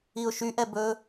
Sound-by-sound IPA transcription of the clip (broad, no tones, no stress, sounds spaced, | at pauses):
i ʊ̯ ʃ y ʔ ɛ b ɵ